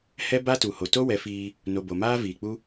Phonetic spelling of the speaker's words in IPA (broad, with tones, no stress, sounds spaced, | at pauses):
h ɛ˦ b a˦ t u˨ h o˨ t o˦ w ɛ˨˦ f iː˧ | n o˨ b o˨ m aː˦ v iː˨ k͡p u˦